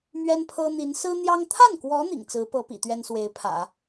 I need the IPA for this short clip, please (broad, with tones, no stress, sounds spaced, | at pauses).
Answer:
m ɥ ɛ˥ n pʰ ɤ˥ n̪ i˧˥ n s ɹ̩˥ n̪ j ɑ˥ ŋ t̪ʰ a˥˩ n k w ɔ˧˥ n̪ ḭ˨˩ ŋ t͡s ɹ̩˧˥ p ɤ˧˥ p ḭ˨˩ t̪ ɥ ɛ˥ n s w e˧˥ ɪ̯ pʰ ä̰˨˩˦